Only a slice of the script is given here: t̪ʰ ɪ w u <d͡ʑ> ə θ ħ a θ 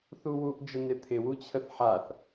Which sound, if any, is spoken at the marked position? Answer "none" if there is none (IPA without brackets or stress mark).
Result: t͡ɕʰ